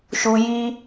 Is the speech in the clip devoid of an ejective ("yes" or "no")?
yes